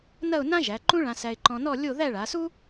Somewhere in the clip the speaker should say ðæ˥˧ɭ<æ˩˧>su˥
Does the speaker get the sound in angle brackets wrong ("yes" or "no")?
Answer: yes